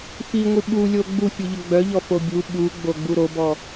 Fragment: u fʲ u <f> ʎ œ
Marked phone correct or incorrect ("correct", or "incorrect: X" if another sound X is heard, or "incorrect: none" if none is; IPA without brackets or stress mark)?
incorrect: none